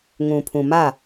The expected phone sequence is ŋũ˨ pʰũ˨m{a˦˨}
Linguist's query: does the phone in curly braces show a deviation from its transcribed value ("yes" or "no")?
no